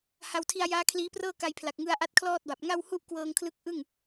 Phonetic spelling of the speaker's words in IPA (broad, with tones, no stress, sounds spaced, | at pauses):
h a˧ w tʰ i˧ a̯ j aː˦˥ kʰ l iː˦˥ p r ɤː˥˩ k a˧ j pʰ l a˨˩ k̚ ŋ ɯ˧ a̯ ʔ a˦˥ t̚ kʰ l ɔː˥˩ t̚ b a˨˩ p̚ ŋ a˥˩ w h u˥˩ ʔ k w ɤː˧ ŋ kʰ l ɯ˦˥ k̚ ʔ ɯ˥˩ ŋ